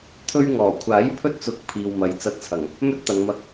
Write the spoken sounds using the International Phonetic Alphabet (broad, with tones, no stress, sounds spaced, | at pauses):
t̪ʰ ɵ˧ ɥ ŋ ɔː˨˩ kʷʰ aː˨˥ j pʰ ɵ˥ t̚ t͡s ʊ˨˥ k̚ pʰ iː˨ w m ɐ˨ j t͡s ɐ˧ t̚ t͡sʰ ɐ˨˩ ŋ | m ɵ˥ t̚ t̪ ɐ˨˧ ŋ m ɐ˧ k̚